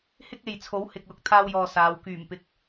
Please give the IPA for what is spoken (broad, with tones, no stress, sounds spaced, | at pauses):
h ɪ˥ k̚ e˨ j t͡sʰ o˨˥ w h ɪ˨ k̚ l ʊ˨ k̚ t̪ʰ aː˧ w j ɔː˨ s aː˨˧ w k yː˨˩ m p ɪ˨ k̚